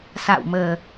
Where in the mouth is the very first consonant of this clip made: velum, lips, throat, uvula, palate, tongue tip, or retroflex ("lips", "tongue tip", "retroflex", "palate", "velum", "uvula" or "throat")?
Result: tongue tip